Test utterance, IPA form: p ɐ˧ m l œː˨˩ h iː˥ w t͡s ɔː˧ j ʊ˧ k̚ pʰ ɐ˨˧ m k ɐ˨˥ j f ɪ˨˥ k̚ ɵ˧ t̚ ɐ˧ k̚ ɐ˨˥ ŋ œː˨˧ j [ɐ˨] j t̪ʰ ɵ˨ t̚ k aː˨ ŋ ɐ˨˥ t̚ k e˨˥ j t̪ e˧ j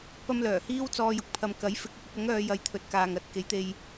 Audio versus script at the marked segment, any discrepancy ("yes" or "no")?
no